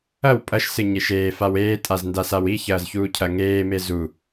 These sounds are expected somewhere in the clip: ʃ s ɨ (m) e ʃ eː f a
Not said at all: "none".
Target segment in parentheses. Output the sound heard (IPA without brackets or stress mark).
ɲ